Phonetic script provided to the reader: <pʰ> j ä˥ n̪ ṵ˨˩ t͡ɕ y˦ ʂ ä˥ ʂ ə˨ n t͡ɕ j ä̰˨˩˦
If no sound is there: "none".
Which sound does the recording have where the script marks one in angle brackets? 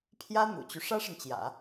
pʰ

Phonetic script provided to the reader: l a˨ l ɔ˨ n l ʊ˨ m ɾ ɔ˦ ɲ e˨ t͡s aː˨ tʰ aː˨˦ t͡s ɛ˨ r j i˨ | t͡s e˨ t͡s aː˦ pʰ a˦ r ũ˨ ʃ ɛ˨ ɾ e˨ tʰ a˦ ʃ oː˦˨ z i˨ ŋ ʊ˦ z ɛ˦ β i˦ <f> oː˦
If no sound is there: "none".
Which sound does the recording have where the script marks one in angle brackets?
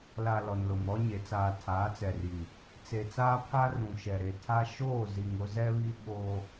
ɓ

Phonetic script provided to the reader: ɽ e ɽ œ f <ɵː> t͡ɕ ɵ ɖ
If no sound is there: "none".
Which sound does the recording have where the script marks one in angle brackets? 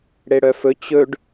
ɵ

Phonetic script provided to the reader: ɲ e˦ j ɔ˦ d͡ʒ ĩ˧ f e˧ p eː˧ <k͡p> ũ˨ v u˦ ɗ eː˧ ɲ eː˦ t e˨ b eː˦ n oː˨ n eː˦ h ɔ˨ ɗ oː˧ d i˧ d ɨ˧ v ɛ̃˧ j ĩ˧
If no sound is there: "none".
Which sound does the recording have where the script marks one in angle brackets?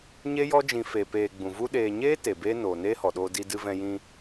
ɡ͡b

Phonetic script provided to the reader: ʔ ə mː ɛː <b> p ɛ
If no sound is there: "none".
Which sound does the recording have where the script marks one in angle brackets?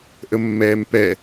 m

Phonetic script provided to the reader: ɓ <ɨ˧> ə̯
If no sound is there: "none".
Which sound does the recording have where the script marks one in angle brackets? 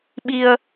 i˧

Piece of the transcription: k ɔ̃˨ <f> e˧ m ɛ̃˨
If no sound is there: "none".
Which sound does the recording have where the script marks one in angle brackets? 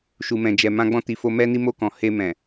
h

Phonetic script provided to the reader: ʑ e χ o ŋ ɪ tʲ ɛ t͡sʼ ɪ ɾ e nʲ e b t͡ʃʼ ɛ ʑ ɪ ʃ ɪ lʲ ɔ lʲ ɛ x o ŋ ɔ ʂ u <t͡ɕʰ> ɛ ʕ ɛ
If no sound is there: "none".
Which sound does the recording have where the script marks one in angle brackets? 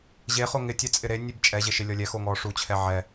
t͡ɕʰ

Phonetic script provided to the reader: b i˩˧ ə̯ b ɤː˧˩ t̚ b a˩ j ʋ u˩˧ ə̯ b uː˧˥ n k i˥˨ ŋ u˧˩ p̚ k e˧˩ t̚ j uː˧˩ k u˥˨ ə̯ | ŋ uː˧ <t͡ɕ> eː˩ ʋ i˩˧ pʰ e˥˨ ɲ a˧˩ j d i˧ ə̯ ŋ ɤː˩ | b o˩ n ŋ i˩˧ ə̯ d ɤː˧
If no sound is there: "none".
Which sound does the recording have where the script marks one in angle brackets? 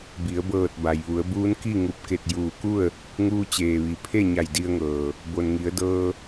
t͡ɕ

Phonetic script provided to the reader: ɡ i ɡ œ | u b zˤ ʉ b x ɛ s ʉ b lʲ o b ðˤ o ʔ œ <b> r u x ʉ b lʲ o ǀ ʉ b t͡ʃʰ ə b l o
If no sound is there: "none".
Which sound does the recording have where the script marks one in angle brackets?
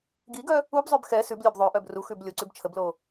b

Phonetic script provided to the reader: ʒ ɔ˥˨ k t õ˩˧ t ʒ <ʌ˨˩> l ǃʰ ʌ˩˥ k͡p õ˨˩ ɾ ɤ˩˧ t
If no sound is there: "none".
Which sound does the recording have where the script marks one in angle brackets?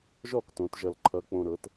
ʌ˨˩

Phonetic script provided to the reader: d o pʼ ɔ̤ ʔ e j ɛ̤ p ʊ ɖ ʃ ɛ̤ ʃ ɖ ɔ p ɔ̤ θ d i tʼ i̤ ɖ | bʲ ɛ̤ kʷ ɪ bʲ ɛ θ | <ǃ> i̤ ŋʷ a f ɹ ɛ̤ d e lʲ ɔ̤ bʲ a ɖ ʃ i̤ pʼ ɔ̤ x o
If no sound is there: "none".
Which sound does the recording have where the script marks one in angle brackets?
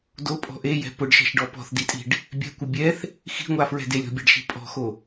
x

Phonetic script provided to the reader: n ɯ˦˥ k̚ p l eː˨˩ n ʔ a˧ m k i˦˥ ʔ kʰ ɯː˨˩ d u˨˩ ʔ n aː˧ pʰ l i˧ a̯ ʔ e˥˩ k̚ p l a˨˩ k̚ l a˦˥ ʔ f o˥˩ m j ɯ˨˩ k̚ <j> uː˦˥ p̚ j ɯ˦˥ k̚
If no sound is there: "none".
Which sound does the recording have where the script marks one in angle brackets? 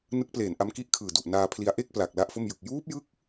j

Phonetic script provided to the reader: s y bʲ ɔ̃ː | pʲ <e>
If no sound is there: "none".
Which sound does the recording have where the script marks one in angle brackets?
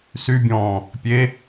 e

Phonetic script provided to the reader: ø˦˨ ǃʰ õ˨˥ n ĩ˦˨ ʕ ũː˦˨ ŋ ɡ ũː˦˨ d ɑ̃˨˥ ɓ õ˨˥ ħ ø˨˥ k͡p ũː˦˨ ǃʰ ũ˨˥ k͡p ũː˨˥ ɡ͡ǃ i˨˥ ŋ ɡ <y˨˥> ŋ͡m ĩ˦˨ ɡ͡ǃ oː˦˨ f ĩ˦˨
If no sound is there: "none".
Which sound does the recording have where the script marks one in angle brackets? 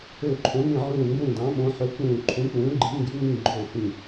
y˨˥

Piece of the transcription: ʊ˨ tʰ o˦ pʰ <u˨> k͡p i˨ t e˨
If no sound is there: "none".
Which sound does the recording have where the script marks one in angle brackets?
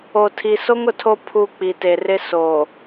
u˨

